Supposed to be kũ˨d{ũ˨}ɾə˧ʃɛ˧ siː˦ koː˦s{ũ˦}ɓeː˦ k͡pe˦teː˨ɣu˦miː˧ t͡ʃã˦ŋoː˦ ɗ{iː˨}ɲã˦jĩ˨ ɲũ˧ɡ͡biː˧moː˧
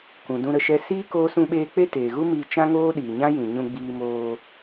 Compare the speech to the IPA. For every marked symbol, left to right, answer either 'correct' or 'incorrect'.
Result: incorrect, correct, correct

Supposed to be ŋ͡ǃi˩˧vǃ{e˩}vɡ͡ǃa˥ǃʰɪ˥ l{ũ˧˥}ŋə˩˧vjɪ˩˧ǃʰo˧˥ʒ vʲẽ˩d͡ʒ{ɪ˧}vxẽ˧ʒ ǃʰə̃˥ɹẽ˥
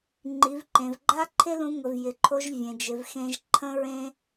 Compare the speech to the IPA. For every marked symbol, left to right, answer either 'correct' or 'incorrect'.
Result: incorrect, correct, incorrect

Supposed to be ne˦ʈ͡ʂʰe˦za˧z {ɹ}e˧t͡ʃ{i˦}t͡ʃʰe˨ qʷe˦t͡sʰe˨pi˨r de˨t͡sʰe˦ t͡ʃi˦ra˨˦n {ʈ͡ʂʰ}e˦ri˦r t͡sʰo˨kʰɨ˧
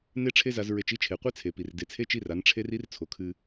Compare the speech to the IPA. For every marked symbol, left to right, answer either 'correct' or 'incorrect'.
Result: correct, correct, correct

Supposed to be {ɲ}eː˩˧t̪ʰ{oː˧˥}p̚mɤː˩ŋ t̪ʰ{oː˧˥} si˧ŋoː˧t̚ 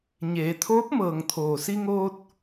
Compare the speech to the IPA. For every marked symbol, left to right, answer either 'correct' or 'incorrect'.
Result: correct, correct, incorrect

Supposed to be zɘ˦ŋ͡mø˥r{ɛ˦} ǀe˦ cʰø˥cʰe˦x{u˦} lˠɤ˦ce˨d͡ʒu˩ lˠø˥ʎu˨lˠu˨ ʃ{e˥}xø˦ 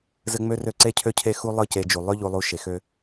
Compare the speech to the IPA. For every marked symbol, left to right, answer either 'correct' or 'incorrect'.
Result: incorrect, correct, incorrect

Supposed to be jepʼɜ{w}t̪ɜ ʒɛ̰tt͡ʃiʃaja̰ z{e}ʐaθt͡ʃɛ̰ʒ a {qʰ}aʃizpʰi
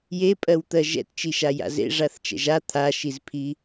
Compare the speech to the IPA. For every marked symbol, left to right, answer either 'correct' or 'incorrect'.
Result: correct, incorrect, incorrect

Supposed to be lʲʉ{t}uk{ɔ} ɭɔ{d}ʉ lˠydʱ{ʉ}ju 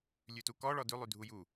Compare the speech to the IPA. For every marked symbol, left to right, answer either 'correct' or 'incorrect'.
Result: correct, correct, correct, incorrect

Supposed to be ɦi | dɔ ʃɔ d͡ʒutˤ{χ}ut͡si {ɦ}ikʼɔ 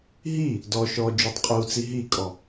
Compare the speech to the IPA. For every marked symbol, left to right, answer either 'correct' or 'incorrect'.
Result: incorrect, correct

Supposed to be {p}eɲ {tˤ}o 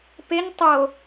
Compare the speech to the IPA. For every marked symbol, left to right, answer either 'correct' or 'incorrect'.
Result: correct, correct

